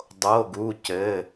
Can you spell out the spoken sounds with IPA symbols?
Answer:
dˤ o˩˧˩ ɡ u˩˧˩ c ɘ˩˧˩

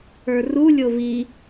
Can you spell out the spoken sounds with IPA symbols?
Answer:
ə˞ r u lʲ o v i

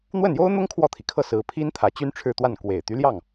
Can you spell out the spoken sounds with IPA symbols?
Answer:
n̪ w ə˥˩ n j o˥ ʊ̯ n̪ ʊ˥ ŋ kʰ w ɔ˥˩ t̪ʰ i˩ kʰ ɤ˥˩ s ɹ̩˧˥ pʰ i˥ n t̪ʰ ä˧˥ t͡ɕ y˥ n ʈ͡ʂʰ ɻ̩˥˧ t̪ w a˥˩ n k w e˨˩ ɪ̯ t̪ y˧˥ l j ɑ˥˩ ŋ

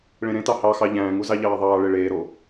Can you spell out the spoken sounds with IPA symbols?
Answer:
ɭ ẽ ɾ ẽ t ɑ h ɑ x ɑ ʎ æ̃ː ŋ u z ɑ ʎ ɑː ðˤ ɑː ɭ e ɭ eː ɾ o

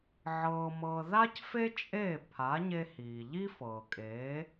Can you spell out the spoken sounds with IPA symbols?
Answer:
ʕ ɤː˧ m ɤː˧ ð a˥ c f e˥ t͡ʃʼ eː˥˩ pʰ a˩˥ ɲ e˧ h iː˩ ʎ i˥ f ɤː˩ kʼ eː˩˥

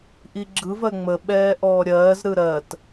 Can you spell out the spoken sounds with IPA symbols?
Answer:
ʔ i ɡ͡ǁ ɯ v ɜ ŋ͡m ə ɓ ɛː ʔ ɔː ɾʲ ɜː z ɾ ɯ ɾ ɜ t

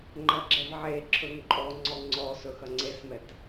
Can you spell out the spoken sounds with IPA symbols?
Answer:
ŋ͡ǃ ɐ ɡ͡ǁ ɛ v ʕ e ǁʰ ɵ ŋ ǃʼ ɔ ŋ͡ǀ ɔ ŋ͡ǀ ɔ s ɵ x ɐ ŋ͡ǀ e s m ɛ t

